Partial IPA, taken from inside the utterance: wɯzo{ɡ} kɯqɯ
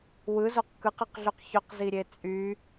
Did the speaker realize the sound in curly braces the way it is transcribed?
no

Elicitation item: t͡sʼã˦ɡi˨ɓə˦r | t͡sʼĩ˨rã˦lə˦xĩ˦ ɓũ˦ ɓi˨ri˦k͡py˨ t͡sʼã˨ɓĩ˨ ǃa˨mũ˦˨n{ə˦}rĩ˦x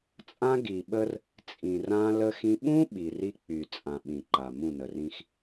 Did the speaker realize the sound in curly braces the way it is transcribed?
no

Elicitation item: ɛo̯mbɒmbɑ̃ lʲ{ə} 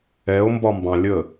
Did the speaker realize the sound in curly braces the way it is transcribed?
yes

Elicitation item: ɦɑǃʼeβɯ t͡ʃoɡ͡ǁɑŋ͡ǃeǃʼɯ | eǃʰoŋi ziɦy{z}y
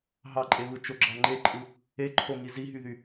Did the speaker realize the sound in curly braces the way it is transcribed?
no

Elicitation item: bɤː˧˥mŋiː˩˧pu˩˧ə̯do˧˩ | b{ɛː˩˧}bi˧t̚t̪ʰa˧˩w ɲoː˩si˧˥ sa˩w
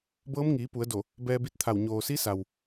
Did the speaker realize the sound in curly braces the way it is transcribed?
no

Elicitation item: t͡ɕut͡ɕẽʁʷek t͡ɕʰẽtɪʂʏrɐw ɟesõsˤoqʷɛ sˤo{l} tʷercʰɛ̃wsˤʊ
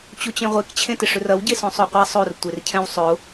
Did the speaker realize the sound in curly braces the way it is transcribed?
no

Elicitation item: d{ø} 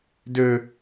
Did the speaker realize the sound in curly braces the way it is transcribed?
yes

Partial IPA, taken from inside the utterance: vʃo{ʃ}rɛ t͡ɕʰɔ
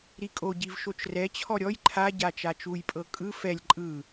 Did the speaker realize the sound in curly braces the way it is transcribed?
no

